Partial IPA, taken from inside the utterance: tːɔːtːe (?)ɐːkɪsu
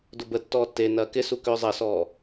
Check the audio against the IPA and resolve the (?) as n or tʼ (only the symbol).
n